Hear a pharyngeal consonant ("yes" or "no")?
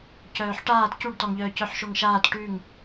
yes